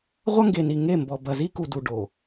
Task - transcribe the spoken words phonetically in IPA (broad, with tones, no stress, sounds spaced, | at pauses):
ʁʷ ɐ˦ ŋ ɡ e˨ n i˨ ŋ e˦˨ m b ɔ˨ b ɐ˨ z i˦ k u˨ d u˨ ɖ o˨